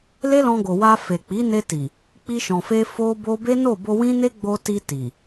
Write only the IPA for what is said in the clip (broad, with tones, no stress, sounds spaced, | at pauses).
l e˦ l ɔ̃˧ ɡ o˨ w a˧ f e˨ k͡p i˨˦ n e˧ t i˨ | k͡p i˧ ʃ ɔ̃˨ f e˧ f o˦ b o˦ b e˦ n o˦˨ b o˧ w ĩ˦ n e˦ ɡ͡b o˧ t i˧ t i˨